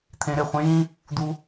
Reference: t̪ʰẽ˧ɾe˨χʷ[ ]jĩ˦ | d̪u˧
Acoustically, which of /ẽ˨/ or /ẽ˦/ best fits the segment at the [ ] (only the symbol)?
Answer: ẽ˦